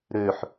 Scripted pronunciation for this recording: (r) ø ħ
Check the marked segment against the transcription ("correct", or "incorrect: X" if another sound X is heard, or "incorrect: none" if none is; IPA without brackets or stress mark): incorrect: ɾ